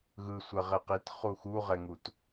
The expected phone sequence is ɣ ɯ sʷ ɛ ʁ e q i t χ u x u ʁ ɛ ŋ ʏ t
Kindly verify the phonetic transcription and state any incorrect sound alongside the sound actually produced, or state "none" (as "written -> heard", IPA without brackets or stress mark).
ʏ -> u